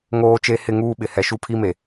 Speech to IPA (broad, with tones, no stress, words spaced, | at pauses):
ŋoː˦ t͡ʃe˦hɪ˦ŋuː˦ɓɪ˨ hɛ˨ʃu˦pʰi˦me˨